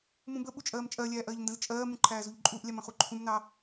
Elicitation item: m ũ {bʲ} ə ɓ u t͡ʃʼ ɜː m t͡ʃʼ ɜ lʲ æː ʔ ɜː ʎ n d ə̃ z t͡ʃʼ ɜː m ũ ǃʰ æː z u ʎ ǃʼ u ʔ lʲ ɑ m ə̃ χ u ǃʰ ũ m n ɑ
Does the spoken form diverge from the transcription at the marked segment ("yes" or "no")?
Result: yes